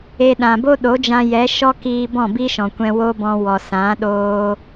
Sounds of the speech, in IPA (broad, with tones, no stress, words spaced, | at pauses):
e˧ ɗã˨bo˦ɗo˨˦d͡ʒã˧ jɛ˨˦ʃɔ˦kiː˧ bɔ̃˦˨bi˦ʃɔ̃˨kʷɛ̃˧ wo˦bɔ̃˧ wɔ˨sã˨˦ ɗoː˧